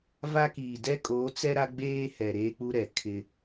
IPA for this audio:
v a˦ k iː˨ d ɛ˦ kʼ oː˨˦ t͡s ɛ˦ ɾ a˦ ɡ͡b eː˦ h ɛ˨ ɾ eː˦ k͡p u˦ ɾ ɛ˨ kʰ ɪ˦

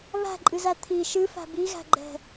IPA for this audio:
β æ̤ ǃʼ ɨ z æ t̪ʰ i ʃ ɨ f æ̤ b i ɣ æ̤ ɡ͡ǃ ɛ̤

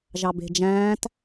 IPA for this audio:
ʒ ɑ b e̤ d͡ʒ æ̃ː t

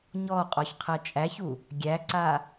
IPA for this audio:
ɲ ɔ qʼ ɔ ç qʰ ɜ t͡ʃʼ æ ç u | ɡʲ æ ǀ a

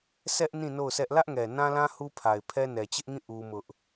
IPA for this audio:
sʰ ɛ˦ ʔ n ĩ˦˨ n o˦˨ ʊ̯ sʰ ɛ˦ ʔ l ä˦ ʔ ŋ ɛ˨ n ã˦ l ã˦ h u˦ pʰ a˨ ɪ̯ pʰ ɛ˦ n ɛ˨ t͡ɕ ɪ˦ ʔ ŋ ĩ˦˨ ʔ u˦ m ʊ˦ ʔ

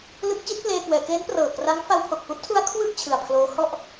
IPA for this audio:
l ɯ˦˥ k̚ t͡ɕ i˦˥ t̚ p l eː˧ k w ɛː˩˦ k eː˦˥ n p r ɤː˨˩ k r a˦˥ ŋ f a˧ w pʰ o˨˩ k̚ f u˦˥ ʔ tʰ u˦˥ a̯ kʰ w ɯ˥˩ k̚ t͡ɕʰ ɯ˨˩ a̯ pʰ l oː˦˥ h ɔ˥˩ ʔ

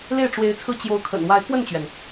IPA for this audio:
l e˥˩ ɪ̯ ʈ͡ʂ w e˧˥ ɪ̯ t͡sʰ ɹ̩˥˩ t͡ɕ j o˧˥ ʊ̯ kʰ ə̰˨˩ n w a˧˥ ɪ̯ k w ə˥˩ n t͡ɕ ɥ ɛ˩ n

